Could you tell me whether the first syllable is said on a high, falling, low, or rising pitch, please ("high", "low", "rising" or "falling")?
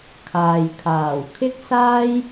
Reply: low